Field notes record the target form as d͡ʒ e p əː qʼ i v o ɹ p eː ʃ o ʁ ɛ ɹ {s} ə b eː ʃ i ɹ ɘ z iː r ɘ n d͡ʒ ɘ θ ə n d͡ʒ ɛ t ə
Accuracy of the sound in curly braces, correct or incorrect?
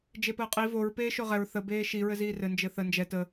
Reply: incorrect